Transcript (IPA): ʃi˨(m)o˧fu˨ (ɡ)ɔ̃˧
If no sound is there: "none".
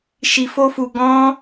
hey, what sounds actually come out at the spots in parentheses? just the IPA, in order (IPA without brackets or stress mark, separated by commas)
f, ɡ